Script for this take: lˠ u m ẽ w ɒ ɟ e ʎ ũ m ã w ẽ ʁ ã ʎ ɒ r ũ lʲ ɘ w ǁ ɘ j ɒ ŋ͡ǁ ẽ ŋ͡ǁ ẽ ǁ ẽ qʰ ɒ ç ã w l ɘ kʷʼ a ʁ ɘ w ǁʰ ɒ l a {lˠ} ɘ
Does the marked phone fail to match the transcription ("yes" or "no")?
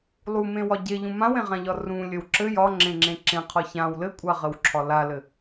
yes